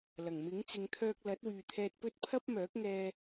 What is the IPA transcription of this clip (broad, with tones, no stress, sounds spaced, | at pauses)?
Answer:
l ɐ˨˩ ŋ m ɪ˨˥ ŋ t͡s ɪ˨˧ ŋ t̪ʰ œː˧ k̚ l ɐ˨˥ t̚ w yː˨ t̪ʰ ɛː˧ t̚ p ɵ˥ t̚ pʰ ɐ˥ p̚ m œː˨˥ k̚ ŋ ɛː˧